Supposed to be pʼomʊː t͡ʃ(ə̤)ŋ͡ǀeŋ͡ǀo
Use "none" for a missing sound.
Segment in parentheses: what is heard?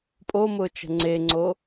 ə̤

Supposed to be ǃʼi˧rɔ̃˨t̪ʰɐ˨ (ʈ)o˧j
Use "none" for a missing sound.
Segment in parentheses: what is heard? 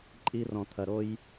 ɾ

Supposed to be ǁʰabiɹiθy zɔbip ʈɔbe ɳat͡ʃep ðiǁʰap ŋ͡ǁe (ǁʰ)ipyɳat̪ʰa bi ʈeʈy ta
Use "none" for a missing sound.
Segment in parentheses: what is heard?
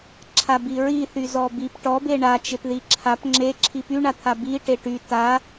ǁʰ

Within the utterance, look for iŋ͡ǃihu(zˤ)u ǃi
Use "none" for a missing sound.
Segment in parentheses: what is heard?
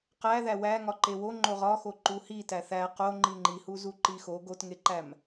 z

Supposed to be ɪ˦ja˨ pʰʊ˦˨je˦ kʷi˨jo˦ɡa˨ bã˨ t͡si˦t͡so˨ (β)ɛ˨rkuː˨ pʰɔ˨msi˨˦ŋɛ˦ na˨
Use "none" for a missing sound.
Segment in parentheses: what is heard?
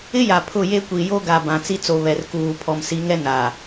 β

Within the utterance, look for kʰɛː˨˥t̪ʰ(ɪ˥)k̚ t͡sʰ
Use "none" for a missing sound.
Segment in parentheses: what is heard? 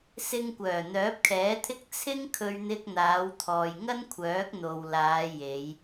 ɪ˥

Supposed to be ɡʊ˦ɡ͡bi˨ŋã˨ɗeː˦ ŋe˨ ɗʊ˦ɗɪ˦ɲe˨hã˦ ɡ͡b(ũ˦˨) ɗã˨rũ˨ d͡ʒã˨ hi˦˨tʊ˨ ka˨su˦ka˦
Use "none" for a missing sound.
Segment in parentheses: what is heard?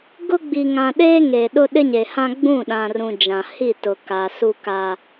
ũ˦˨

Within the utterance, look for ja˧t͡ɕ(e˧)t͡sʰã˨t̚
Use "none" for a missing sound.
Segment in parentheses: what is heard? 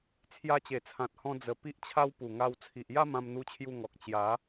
e˨˩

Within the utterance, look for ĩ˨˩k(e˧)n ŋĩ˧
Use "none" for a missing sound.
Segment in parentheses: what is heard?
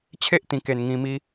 e˨˩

